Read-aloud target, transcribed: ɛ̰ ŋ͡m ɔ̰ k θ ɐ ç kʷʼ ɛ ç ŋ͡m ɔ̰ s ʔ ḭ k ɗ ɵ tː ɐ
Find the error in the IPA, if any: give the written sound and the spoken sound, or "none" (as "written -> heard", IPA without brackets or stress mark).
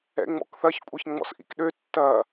ɵ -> ø